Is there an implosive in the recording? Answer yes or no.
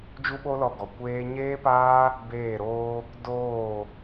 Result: yes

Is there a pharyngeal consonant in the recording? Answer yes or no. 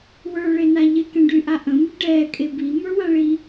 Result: no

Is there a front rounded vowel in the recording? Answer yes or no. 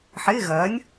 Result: no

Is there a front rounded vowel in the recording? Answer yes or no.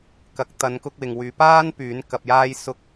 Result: yes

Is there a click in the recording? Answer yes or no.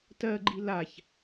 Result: yes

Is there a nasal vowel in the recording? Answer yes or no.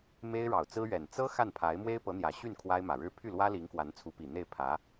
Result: no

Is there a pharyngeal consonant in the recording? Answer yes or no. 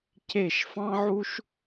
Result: yes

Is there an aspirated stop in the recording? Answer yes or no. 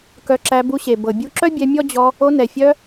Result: no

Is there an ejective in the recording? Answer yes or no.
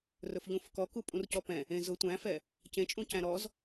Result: yes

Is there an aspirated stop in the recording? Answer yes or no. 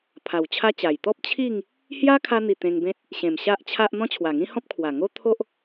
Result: yes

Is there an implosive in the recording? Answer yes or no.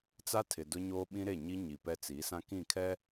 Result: yes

